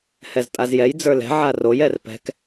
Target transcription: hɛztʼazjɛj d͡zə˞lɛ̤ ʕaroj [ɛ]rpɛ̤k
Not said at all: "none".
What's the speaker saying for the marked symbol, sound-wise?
ɛ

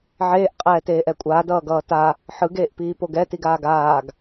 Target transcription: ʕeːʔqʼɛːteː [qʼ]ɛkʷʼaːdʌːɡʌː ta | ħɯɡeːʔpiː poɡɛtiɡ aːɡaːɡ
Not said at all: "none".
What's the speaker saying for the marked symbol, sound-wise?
ʔ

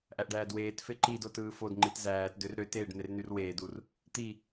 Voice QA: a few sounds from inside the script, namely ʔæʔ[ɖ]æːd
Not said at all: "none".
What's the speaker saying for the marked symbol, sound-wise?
ɖ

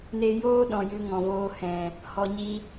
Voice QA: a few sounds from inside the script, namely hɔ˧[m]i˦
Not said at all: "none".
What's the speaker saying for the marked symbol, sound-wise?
ɲ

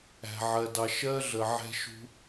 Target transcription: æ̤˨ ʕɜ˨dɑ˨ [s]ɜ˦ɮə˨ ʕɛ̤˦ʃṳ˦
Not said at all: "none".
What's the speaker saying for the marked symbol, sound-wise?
ʃ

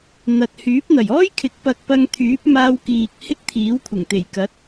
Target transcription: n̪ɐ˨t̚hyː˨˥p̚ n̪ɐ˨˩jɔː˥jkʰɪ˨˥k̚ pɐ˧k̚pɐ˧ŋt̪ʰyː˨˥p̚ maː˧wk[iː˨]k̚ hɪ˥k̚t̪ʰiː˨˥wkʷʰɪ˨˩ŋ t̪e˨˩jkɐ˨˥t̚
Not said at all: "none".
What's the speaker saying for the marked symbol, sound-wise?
iː˨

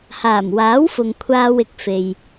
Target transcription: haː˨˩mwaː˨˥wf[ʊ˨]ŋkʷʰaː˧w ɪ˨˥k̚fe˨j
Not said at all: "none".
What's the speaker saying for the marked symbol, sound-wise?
ʊ˨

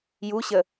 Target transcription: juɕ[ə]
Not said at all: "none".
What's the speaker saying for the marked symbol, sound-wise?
ə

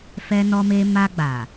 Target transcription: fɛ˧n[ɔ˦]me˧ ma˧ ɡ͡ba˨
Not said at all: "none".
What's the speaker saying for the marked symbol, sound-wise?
ɔ˧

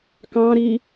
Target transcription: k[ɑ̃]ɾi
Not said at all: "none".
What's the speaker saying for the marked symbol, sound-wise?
ɑ̃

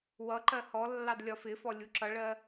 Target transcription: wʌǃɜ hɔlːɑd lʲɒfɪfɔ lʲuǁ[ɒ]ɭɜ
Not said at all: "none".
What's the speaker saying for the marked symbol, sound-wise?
ʌ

